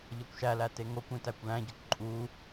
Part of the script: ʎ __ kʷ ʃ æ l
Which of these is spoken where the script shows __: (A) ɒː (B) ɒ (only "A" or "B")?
B